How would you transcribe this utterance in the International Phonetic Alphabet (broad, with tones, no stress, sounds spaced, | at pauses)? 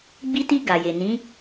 ɡ͡b i˧ t i˧ ɡ a˨ j e˨ n ĩ˨˦